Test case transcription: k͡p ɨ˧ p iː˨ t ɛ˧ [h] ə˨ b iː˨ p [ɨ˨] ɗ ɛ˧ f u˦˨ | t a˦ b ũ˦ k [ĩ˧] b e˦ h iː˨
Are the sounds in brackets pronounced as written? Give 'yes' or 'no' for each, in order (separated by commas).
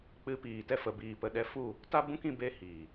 no, no, yes